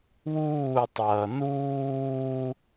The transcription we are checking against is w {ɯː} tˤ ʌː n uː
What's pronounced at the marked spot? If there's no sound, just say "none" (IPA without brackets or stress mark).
uː